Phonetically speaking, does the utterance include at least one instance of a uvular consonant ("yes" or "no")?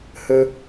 no